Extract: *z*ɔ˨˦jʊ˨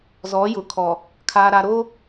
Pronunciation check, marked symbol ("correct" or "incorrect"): correct